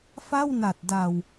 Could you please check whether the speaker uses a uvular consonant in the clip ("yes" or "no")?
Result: no